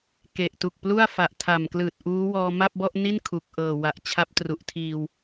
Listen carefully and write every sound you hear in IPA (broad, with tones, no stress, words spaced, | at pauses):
ke˨˩ʔtu˨˩k̚plu˥˩a̯ fa˨˩ʔtʰa˨˩mklɯː˨˩t̚ ʔuː˦˥wɔː˧ ma˥˩p̚bɔ˥˩ʔni˥˩n kʰu˨˩k̚ʔɤː˨˩ wa˨˩ʔ t͡ɕʰa˦˥p̚tru˨˩ʔtʰiː˧w